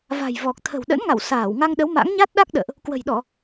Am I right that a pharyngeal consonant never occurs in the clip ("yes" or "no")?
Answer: yes